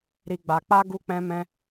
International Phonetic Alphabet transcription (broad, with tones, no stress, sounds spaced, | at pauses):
ɾ i˧ ɡ͡b a˧ k͡p a˦ ɡ u˦ k͡p ɛ̃˦ m ɛ̃˦